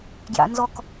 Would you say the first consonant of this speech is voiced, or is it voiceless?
voiced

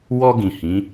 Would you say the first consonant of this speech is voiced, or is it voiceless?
voiced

